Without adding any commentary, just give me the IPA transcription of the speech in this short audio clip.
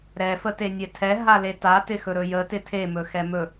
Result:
ɾɛfə tenʲɛtʰɛ ɦaleta tɪxɵɾɵjə tɪtʰe mɵxɛmɵ

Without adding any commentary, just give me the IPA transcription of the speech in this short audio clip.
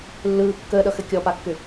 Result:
lːɯː kːəːɗʌxɘ kʲɔpakːʏ

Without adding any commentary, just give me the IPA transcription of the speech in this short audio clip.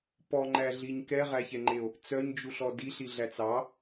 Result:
pɔŋ͡ǃæɮiɲ kɛʁæçɛŋ͡ǃeo̯ | t͡sœɲd͡ʒuɬɔ diɬiɮæt͡s ɑ

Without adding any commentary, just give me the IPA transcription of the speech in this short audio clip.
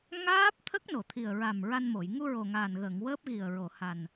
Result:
ŋaː˦˥p̚ t̪ʰə˦˥k̚no˨˩˨t̪ʰi˨˩ə̯ ɹa˨˩m ɹa˧nmo˨˩˨j ŋu˧ɹo˨˩ŋaː˨˩nɣəː˨˩˨ŋ wəː˦˥p̚ɣi˨˩ə̯ɹo˨˩˨ ha˨˩n

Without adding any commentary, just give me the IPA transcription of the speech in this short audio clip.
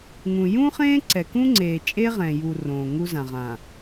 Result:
ŋũ˨ jũ˦χẽː˦ǀɛ˨kũ˦ ŋ͡ǀeː˨t͡ʃʼe˦ʁɛ̃˨ju˨ rõː˨ ŋu˦zã˨ʁã˨

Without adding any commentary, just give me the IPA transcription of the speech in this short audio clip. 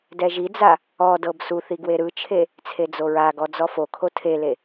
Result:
dɛʒid͡za | ɔdɤb suθi ɡweɾɯt͡ʃʰe | t͡sʰed͡zoɹaɡɔ d͡zɔfokʰo tʰele

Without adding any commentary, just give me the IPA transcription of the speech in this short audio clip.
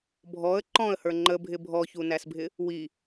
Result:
bʱɔə̯ ǃɔ̃ə̯hə˞ ŋ͡ǃəbʱɪ bʱɔçunæsbʱɪ | wi

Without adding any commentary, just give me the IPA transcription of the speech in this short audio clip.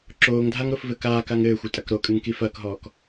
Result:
ǁoːŋdʱaŋɾofvɘ kaːkaŋ ɘːxʷɘtʼɐk ɾokʼɨŋki fɐːkɦɔːk

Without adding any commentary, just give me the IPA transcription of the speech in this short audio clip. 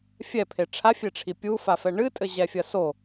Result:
fʲɛpʰe ʈ͡ʂʰafʲeʈ͡ʂʰi pʲufafɛ ɳɨtʼɘʑɛfʲɐ so

